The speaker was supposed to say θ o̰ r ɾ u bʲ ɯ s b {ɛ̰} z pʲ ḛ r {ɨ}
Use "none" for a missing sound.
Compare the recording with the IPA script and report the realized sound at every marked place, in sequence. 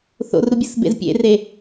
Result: ḛ, e

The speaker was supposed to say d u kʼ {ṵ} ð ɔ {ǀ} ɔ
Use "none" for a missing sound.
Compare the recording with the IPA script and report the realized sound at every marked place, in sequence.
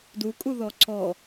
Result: u, ǀ

